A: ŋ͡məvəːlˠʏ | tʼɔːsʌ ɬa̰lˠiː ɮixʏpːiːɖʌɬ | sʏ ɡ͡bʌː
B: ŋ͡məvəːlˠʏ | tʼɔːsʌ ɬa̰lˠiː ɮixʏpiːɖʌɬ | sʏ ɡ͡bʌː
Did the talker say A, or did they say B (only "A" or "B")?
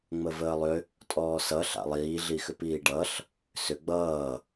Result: B